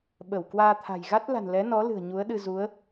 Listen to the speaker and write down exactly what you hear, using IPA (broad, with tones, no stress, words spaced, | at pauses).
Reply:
ɓə˧˩w kwaː˧t̪ʰa̤˨˩j ɣa˦˥t̚la̤˨˩n lɛ˨˦nɔ˨˦ lɨ̤˨˩ə̯ɲu˨˦ə̯ɗɨ˧ zu˨˦ə̯